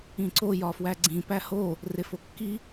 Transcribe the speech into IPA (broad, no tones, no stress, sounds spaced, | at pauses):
ĩ ǀ o j ɒ f w æ ɡ͡ǀ ĩ p æ h o | r e f o kː i